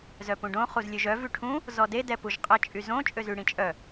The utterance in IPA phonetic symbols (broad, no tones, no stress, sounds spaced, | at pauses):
z œ p ũ ɖ õ χ u z lʲ ø ʒ œ v y ʈʰ ũ | z ɔ d e d ɛ p u ʒ qʼ ə t͡ʃʼ y z õ t͡ʃʼ ø z y ɽ ĩ t͡ʃʼ œ